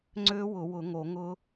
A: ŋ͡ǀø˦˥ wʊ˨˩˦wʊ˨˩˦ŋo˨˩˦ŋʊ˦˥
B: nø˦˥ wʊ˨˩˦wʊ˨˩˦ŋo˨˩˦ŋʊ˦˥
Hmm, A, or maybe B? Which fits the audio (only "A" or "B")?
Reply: A